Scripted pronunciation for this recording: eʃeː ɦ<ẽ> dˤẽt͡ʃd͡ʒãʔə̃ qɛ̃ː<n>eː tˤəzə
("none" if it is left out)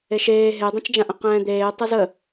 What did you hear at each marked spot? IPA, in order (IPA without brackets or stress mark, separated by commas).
e, d̪